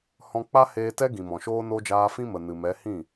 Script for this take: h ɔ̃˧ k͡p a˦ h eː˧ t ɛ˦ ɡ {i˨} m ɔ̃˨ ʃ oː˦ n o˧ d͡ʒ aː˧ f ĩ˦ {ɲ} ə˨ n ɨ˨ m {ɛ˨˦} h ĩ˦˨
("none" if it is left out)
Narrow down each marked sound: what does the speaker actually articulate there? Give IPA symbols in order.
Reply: ĩ˨, m, ɛ˨˦

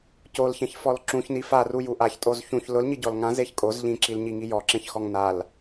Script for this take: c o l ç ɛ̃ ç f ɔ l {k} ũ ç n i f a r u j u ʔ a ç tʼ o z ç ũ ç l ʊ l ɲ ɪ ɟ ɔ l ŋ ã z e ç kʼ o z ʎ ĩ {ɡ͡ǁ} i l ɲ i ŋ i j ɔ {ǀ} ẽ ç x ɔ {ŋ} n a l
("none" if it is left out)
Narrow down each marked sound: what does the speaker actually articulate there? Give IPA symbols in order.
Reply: ǁ, ǁ, ǁ, ŋ

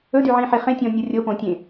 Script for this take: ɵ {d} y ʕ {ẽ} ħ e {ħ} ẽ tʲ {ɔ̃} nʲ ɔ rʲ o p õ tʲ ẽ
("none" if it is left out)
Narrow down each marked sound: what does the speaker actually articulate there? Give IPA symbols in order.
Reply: d, ĩ, χ, ɔ̃

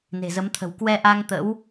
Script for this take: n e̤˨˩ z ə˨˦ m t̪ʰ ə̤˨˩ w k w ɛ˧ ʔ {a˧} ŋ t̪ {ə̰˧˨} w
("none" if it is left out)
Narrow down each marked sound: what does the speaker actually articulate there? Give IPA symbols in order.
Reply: a˧, ə̰˧˥

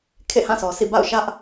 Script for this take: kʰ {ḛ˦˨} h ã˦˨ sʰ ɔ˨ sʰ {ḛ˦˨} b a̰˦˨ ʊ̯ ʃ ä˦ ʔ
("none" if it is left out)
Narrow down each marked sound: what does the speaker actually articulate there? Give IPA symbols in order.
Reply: ḛ˦˨, ḭ˦˨

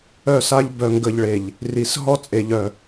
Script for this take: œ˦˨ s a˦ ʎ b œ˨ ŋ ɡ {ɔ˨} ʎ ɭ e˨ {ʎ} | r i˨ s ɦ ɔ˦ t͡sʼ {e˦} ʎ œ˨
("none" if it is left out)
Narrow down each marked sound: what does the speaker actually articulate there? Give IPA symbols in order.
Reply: ə˨, ʎ, e˨

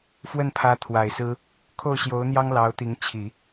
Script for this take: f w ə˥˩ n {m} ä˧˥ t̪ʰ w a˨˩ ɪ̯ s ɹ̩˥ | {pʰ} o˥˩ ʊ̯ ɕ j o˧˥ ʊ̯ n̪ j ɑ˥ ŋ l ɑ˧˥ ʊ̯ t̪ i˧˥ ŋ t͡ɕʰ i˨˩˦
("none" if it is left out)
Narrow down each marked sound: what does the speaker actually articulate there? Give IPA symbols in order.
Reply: pʰ, kʰ

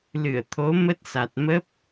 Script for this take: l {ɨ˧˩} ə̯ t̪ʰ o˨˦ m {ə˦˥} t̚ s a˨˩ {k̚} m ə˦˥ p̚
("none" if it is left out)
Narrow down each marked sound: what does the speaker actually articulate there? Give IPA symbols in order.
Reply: ɨ˧˩, ə˦˥, t̚

